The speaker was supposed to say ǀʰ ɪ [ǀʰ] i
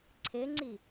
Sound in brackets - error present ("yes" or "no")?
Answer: yes